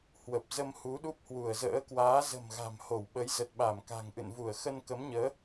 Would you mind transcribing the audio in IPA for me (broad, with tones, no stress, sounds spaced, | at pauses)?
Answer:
h w ə˨˩ p̚ z ə˧ m h u˨˦ ɗ u˦˥ p̚ h w u˧˩ ə̯ z ə̰ː˧˥ k w aː˨˦ z ə̤˨˩ m ɣ a̤˨˩ m h o˧˩ w ɓ ə˨˦ j z ə˨˩ t̚ ɓ a˧˩ m k a̤˨˩ ŋ ʔ ɨ̰˧˨ n v u˧˩ ə̯ x ə˧ n k ə˨˦ m ɲ əː˨˦